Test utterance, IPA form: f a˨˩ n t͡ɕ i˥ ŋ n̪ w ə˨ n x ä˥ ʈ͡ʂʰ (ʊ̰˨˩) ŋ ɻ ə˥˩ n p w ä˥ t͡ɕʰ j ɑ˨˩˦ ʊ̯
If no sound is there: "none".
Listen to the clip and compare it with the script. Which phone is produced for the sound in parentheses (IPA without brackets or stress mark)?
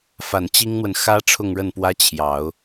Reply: ʊ˥˧